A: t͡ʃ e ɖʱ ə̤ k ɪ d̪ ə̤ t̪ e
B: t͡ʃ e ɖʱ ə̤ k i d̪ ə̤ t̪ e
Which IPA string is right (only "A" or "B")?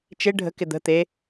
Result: A